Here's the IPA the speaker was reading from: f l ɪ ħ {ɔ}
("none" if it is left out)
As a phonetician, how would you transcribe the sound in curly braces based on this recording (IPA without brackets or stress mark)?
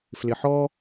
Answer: ɔ